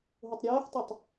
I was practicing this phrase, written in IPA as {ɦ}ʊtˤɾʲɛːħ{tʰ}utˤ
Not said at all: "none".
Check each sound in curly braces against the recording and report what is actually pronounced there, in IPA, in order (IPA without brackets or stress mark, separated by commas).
ɦ, tˤ